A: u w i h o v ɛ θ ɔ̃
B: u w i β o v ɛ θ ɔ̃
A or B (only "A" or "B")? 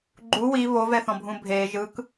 B